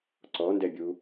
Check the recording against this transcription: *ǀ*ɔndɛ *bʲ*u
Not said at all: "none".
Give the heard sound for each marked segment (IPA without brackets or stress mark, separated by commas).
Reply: ǀ, bʲ